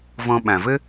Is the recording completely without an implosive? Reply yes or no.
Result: no